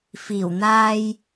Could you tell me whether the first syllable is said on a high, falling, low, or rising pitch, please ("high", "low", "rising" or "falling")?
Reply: low